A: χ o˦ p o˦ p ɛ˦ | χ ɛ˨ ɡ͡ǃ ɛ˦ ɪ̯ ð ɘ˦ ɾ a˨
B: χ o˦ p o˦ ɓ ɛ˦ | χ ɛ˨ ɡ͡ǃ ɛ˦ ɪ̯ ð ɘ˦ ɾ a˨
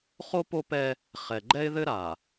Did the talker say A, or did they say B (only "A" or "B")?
A